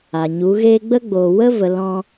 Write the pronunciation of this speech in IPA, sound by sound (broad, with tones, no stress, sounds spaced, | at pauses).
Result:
a˨ ɲ u˨˦ ɣ eː˦ ɡ͡b ə˦ ɡ͡b oː˨ w ə˦ v ə˨ l ɔ̃˧